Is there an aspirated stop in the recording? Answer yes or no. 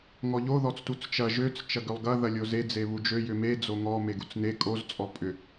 no